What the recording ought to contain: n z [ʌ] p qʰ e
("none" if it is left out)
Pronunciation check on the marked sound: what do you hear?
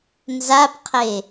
a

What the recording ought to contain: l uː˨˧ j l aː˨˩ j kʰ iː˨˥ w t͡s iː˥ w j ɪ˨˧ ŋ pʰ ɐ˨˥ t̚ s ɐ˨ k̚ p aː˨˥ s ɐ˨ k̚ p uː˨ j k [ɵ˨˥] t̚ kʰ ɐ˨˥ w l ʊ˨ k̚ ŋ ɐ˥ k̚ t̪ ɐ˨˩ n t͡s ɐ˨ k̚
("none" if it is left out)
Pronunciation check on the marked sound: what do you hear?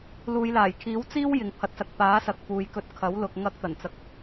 ɵ˧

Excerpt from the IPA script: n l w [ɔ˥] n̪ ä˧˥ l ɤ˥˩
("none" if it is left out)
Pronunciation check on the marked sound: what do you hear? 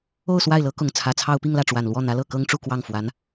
ɔ˥˩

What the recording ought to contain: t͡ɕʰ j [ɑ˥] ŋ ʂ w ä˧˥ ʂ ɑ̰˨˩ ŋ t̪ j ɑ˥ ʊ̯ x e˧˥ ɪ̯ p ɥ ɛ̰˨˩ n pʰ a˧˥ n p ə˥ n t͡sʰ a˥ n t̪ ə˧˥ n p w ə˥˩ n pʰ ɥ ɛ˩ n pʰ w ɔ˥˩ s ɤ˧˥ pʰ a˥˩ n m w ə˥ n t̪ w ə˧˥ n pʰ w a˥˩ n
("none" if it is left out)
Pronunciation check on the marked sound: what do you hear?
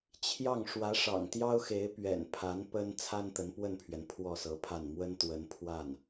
ɑ˥˩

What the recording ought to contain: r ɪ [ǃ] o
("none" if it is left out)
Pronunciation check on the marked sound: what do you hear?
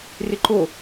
ǃ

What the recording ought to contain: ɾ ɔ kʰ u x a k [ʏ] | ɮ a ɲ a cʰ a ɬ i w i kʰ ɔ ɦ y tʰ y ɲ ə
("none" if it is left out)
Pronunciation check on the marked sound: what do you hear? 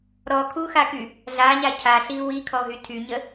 y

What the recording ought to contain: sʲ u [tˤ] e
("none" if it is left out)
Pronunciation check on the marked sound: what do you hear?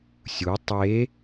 tˤ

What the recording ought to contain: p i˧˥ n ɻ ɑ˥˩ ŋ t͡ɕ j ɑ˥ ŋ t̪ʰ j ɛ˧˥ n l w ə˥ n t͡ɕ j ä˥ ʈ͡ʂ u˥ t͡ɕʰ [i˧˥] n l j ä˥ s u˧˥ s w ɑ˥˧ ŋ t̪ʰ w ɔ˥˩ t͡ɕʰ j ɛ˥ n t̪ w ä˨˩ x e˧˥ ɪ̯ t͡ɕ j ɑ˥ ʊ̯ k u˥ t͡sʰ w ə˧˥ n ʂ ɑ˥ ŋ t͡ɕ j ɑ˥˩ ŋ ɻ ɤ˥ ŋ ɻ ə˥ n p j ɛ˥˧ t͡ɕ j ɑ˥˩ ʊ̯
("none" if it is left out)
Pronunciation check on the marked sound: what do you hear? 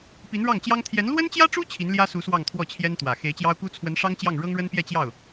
i˧˥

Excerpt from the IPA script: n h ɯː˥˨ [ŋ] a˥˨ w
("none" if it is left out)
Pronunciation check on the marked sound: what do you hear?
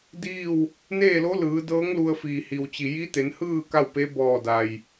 k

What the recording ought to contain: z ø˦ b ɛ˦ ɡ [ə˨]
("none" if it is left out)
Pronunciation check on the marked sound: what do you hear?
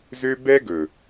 ɵ˨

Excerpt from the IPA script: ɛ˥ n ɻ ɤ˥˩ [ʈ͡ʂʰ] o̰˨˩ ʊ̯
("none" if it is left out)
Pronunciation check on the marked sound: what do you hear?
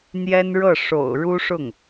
ʂ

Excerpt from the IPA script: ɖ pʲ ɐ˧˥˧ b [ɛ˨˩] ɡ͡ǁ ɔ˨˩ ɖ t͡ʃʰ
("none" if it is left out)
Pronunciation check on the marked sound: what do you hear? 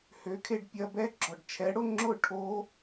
ɛ˦˥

